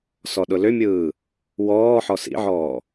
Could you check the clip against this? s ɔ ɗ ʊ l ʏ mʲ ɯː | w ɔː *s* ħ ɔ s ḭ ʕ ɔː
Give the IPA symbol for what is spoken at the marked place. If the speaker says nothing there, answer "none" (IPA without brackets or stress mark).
none